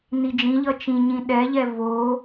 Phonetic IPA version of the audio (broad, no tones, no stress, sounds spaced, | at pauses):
n i d͡ʒ ĩ ʎ ʌ t͡ʃ ĩ ɲ ĩ ɗ ɛ ʎ ɛ v o